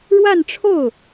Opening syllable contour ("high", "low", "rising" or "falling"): falling